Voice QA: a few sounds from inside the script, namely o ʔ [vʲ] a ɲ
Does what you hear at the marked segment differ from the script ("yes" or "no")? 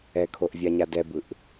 no